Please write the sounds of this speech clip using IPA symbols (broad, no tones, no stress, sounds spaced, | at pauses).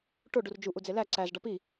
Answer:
ʈ o ɖ u r d͡ʒ u ʔ u d͡z e l æ ǀ æ z ɖ ɒ p i